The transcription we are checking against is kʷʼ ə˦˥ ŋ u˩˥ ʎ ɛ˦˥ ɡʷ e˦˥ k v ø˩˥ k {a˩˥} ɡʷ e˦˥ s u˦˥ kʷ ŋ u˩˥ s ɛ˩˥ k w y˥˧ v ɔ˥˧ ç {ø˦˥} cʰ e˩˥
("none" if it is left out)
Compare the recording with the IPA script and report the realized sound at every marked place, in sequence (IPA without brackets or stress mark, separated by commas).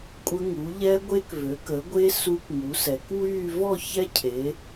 ə˩˥, ɛ˦˥